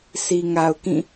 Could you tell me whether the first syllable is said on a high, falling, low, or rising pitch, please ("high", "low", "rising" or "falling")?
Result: low